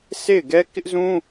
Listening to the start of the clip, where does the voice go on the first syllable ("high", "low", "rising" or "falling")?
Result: falling